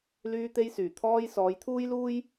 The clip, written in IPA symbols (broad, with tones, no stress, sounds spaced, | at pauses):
l yː˧ t̪ e˧ j s yː˨˩ t̪ʰ ɔː˧ j s ɔː˨˧ j t̪ʰ uː˥ j l uː˥ j